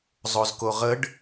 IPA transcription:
zˤ o z k o ʁ ə ɖ

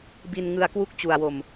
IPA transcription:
b i˧ n ŋ ɯ˧ a̯ k w u˦˥ k̚ t͡ɕ u˧ a̯ w o˧ m

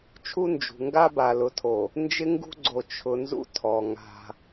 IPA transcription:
t͡ʃʰ u˦ n d͡ʒ ṳ˨ ŋ ɡ a˦ b a˨ l ʊ˨ tʰ o˨ | n d͡ʒ ɪ˦ ŋ ɡ ṳ˦ ɡ͡ǀ o˨ t͡ʃʰ ʊ˨ n z ṵ˦ tʰ ɔ˨ ŋ a̤˦

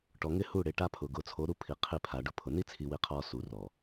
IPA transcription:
ʈ ɔ˨ ŋ ɪ˦ h u˦˨ ɽ e˨˦ ʈ a˦ pʰ ʊː˨ ɡ ʊː˨ t͡sʰ o˨˦ ɾ u˦ pʰ i˨ qʰ i˦˨ pʰ a˨ ɖ ʊ˦ pʰ ʊ˨ n i˦ t͡sʰ i˨ w i˨ qʰ ɔː˨ s u˨ r ɔː˨

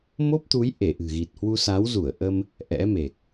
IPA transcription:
m o˦˥ p̚ t̪ u˨˦ j ʔ e˧˩ ʔ ɨ̤˨˩ ɣ i˨˩ t̚ h w u˧ s a˨˦ w z u˧˩ ə̯ ʔ ə˧ m | ʔ ɛ̰˧˥ m e˨˩ k̚

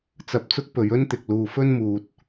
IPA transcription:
t͡s ɐ˧ p̚ t͡s ʊ˥ k̚ p ɵ˨˧ ɥ ɵ˥ n t̪ ɪ˨ k̚ l uː˨ f ɵ˥ n m uː˨ t̚

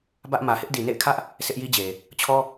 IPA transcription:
b ä˦ ʔ m ä˨ h ɪ˦ ʔ d i˨ n ḛ˦˨ ɪ̯ kʰ ä˦ ʔ | s ɪ˦ ʔ j i˦ d͡ʑ e˨ | t͡ɕʰ ɔ˦

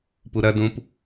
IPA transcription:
p u ɾ ɐ d ũ p

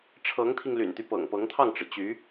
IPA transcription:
ʈ͡ʂʰ ɤ˧˥ ŋ t̪ʰ i˧ ŋ l y̰˨˩ n t̪ y˦ p ɤ̰˨˩ ŋ p ɤ˧˥ ŋ t̪ʰ ɑ˥˩ ŋ ʈ͡ʂ ɻ̩˩ t͡ɕ y˧˥

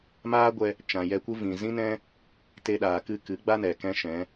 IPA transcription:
m aː˦ ɡʷ ɛ˧ | t͡ʃ ã˨ j ɛ˧ kʷ ɨ˦ v ĩ˨ z ĩ˦ n ɛ̃˦ | t e˧ ɗ aː˨ k ɨ˦˨ k ɨ˨˦ ɡ͡b a˦ n ɛ˨ k ɛ̃˦ ʃ ɛ̃˨˦

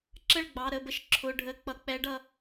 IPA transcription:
ǁ ə˥˩ ɭ ɡ͡b ɑ˩˧˩ ɾ ə˩˧˩ b ə˥˩ ʃ ǁʰ ʊ˩˧˩ ɖʱ ə˩˧˩ k͡p ʌ˩ k͡p ɛ˩˥ ɖ ʌ˩

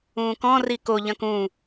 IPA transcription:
ũː k ɔ̃ r i k o ʎ ɐ̃ k ũ

